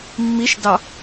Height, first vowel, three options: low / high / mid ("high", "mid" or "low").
high